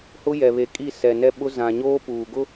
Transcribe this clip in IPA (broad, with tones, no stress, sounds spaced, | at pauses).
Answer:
h ʊ˦ j ɛ˨ β e˨ kʼ i˦˨ s ɛ˨ n ɛ˦ ɓ ʊ˦ z ã˨ ɲ oː˦ p uː˨ ɡ ʊ˦